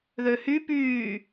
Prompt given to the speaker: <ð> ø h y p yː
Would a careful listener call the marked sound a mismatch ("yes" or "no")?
no